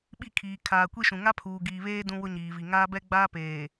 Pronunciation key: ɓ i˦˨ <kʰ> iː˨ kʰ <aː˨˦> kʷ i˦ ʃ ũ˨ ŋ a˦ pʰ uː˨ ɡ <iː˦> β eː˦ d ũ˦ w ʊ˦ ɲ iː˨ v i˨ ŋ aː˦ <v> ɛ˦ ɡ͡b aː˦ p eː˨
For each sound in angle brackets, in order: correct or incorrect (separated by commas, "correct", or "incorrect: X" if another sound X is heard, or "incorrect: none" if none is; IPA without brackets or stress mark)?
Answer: correct, incorrect: aː˨, incorrect: iː˨, incorrect: b